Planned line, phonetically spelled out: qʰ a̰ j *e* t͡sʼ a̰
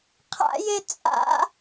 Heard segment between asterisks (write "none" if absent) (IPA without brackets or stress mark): e